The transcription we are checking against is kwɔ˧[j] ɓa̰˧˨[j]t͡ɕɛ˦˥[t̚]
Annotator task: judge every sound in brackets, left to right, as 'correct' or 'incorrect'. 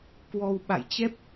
incorrect: w, correct, incorrect: p̚

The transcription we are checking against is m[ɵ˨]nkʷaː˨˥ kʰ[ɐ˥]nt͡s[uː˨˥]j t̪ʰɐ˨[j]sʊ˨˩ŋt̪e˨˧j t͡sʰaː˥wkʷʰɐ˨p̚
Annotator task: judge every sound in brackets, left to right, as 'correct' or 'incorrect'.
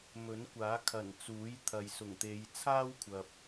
incorrect: ɵ˨˥, incorrect: ɐ˨˩, correct, correct

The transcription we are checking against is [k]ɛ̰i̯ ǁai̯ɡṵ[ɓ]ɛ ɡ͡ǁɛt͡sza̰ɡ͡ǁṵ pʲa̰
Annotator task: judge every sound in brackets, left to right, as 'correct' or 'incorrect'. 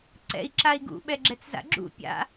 incorrect: ǀ, correct

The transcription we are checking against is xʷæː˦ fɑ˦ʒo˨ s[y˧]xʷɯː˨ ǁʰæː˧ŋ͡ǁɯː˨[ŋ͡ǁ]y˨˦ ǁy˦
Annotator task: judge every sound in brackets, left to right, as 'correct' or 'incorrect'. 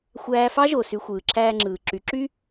correct, incorrect: ǁ

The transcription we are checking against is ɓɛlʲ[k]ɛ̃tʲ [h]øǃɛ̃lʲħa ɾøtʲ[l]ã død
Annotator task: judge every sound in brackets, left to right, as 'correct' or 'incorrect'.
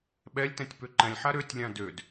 incorrect: t, incorrect: p, incorrect: lʲ

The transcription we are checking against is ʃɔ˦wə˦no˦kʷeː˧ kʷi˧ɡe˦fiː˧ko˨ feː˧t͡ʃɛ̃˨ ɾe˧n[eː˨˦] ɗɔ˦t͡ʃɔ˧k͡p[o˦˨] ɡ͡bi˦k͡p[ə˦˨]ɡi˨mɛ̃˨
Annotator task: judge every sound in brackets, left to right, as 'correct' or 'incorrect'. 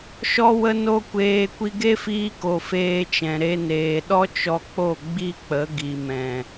incorrect: eː˨, correct, incorrect: ə˨˦

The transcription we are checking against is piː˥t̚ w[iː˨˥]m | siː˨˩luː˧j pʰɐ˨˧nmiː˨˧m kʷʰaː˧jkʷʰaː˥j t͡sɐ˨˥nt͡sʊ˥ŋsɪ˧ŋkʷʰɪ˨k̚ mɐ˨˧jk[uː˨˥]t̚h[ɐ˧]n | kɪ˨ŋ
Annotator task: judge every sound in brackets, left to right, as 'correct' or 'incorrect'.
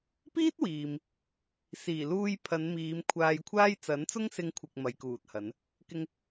incorrect: iː˨, incorrect: uː˨, incorrect: ɐ˨˧

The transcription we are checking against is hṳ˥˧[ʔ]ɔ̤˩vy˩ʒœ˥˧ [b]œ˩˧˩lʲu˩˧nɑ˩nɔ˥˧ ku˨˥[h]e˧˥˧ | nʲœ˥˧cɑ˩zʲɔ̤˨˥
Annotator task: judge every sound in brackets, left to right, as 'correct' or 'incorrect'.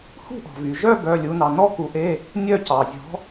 correct, correct, incorrect: ʔ

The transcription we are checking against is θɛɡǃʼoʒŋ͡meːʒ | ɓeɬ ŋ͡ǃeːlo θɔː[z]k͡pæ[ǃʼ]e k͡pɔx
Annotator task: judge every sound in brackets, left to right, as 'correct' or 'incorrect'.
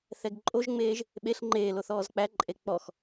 correct, correct

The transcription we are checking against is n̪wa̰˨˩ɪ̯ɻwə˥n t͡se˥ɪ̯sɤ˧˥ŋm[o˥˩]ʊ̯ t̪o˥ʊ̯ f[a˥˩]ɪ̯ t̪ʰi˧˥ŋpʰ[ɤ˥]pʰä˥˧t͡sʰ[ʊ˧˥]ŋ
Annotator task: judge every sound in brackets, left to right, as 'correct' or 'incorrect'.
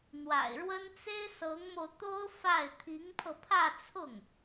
incorrect: o˧, correct, incorrect: ɤ˧, incorrect: ʊ˥˩

